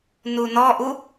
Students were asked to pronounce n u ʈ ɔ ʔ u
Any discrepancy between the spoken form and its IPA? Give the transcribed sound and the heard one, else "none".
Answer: ʈ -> n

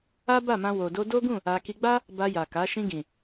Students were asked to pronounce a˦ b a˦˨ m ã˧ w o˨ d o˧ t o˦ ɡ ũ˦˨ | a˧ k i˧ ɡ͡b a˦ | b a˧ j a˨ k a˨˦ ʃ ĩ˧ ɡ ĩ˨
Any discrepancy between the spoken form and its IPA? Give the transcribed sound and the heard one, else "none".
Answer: t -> d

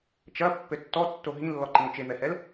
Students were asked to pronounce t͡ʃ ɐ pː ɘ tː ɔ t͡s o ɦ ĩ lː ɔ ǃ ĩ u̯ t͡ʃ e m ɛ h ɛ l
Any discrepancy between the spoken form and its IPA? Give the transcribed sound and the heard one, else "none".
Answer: t͡s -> tː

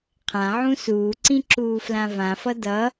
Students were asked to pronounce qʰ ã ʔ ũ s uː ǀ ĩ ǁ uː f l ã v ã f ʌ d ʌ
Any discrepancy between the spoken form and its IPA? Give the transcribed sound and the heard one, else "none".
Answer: ʔ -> ʕ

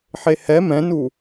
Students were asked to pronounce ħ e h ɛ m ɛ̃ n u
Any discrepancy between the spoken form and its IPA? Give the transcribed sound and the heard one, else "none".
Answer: none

